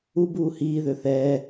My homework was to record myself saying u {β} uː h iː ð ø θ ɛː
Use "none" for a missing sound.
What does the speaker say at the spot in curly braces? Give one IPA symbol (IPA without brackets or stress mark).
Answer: b